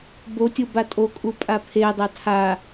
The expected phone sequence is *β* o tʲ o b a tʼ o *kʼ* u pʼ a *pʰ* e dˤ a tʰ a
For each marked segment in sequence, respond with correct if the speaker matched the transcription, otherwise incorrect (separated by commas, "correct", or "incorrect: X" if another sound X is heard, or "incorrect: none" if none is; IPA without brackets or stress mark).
incorrect: b, correct, correct